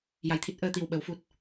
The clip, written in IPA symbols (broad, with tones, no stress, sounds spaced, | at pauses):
j a˨˩ j t̪ʰ i˦˥ t̚ ʔ əː˧ t̪ i˨˩ w ɓ ə˨˩˦ w f u˨˩ t̚